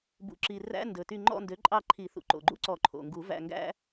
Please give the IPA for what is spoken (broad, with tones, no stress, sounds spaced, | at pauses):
b ṵ˨˩ ǁ i˨˩ r æ̰˧˥˧ n d ɵ˨˩ t y˦˨ ŋ͡ǃ ɔ̰˦˨ n d ø˩˥ ǃʼ ɑ˦˨ ǃʰ i˨˩˦ θ ṵ˨˩ ǃ o̰˨˩ ɡ͡ǃ ṵ˥ ǀ ɔ˨˩˦ ǃʰ o̰˨˩ ŋ ɡ u˨˩˦ v æ̰˦˨ ŋ ɡ æ̰˥